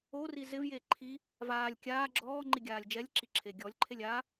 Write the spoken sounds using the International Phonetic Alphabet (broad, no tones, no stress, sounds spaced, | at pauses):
o r i z ɪ v j e ǃʰ i | v aː lʲ kʲ aː ɡ͡ǁ ɔː ŋ͡ǃ i ɡʲ aː lʲ d͡ʒ ɛ lʲ ǁ i ǁʰ e ɡʲ ɔ lʲ ǃʰ e lʲ a